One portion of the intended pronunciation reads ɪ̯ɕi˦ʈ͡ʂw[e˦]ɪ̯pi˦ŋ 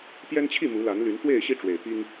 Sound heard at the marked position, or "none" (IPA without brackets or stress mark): e˨˩